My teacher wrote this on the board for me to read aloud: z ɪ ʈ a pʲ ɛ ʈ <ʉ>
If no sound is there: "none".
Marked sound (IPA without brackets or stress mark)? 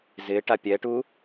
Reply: u